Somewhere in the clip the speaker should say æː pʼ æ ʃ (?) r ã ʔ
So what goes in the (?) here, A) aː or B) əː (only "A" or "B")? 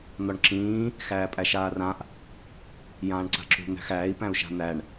A